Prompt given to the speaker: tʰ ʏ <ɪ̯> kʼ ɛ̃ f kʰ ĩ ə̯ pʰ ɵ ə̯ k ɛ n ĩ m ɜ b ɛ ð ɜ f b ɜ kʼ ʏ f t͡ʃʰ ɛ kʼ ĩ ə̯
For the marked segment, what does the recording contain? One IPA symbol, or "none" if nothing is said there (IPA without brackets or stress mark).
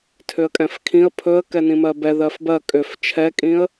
ə̯